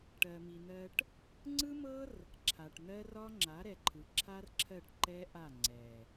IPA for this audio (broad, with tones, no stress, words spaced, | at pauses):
ʈɜ˨mi˨n̪ɜ˧ʈ | ŋ͡ǀɯ˦mɤ˦r | ǁʰa˨ʈn̪ɜ˦rɒ˦ ŋ͡ǁa˨˦ɾɛ˨ǃʰɯ˨ǁʰa˦r ǁʰɜ˦˨ʈ ǃɛ˦ʔa˦˨ ŋ͡ǀɛ˨